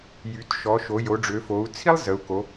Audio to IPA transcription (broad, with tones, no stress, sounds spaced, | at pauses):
j y˩˧ t ʃ ɔ˩˧ ʃ o˩˧ j o˩˧ ɖ͡ʐ ø˩˧ f o˩˧ u̯ t͡sʰ i˥ lˠ z ə˩˧ u̯ k o˩˧